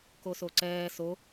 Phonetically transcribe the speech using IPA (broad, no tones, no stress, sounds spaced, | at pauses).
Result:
k o s o ǀ ɛː s o